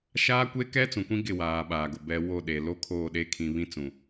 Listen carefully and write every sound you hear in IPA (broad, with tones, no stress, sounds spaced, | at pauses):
ʃ aː˦ kʷ e˦ k ɛ˦ t͡s ũ˨ kʷ ĩ˦ ɡ ɪ˦˨ w aː˨ ɓ aː˨ ɡ ʊ˨ b ɛ˨ w o˦˨ ɗ e˨ l o˦ kʰ oː˦˨ ɗ e˦ kʰ ĩ˨ β ĩ˦ t͡s ũ˨